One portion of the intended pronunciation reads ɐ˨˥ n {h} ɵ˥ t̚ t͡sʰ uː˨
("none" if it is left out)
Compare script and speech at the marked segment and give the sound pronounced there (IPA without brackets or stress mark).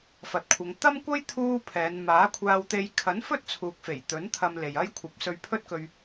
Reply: f